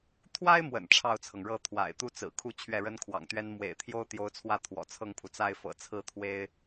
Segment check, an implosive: absent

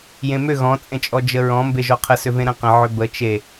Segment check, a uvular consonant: present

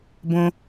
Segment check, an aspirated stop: absent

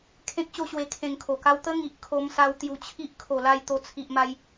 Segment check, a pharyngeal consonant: absent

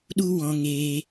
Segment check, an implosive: present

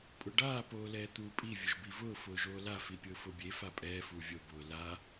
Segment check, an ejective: present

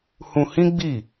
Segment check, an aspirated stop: absent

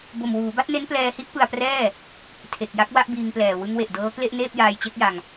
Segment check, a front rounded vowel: absent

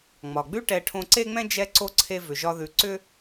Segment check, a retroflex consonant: present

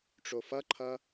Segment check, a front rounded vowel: absent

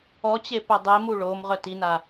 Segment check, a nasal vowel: absent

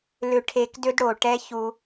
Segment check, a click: absent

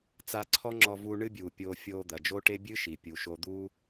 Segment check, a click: present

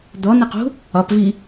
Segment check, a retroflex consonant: absent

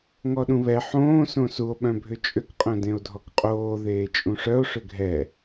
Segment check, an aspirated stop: absent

